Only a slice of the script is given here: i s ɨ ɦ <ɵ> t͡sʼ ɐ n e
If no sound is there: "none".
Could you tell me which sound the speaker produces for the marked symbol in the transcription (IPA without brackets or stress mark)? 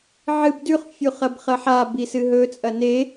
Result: ɵ